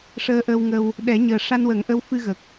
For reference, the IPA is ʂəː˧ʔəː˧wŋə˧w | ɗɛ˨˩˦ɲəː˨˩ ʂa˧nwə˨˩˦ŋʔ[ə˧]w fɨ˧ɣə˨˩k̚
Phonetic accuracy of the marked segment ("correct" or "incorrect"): incorrect